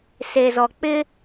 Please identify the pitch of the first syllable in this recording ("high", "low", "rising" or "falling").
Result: low